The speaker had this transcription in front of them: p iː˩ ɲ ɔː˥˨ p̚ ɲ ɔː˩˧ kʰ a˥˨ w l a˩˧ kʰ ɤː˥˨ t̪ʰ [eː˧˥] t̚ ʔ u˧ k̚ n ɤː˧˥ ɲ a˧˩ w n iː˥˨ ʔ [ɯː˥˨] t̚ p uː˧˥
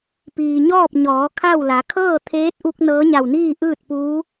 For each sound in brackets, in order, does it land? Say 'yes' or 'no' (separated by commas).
yes, yes